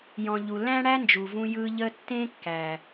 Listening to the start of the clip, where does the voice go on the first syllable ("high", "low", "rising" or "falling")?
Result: low